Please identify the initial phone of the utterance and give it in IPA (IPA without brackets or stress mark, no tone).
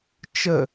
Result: t͡ʃ